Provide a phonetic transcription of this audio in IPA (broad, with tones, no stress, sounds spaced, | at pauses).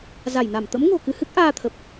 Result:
z a˧˩ j n a˧˩ m t̪ ə̰˧˥ m ŋ o̤˨˩ k ɨ˧ h ɨ˦˥ k̚ ʔ aː˧ t̪ʰ ə˨˩ p̚